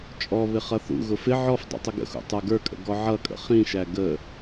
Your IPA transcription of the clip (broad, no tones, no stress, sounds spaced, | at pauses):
t͡ʃʼ ɔ β ɪ χ ʌ θ ṵ ɣ ʊ f ɪ ʕ ɔ f dˤ ṵ tˤ ʊ ɡ ə̰ x ṵ tˤ ə˞ ɡ ə˞ kʼ ə̰ ɡ ɔ ʕ ʌ kʼ ə̰ χ ĩ ʃ æ ɡ ə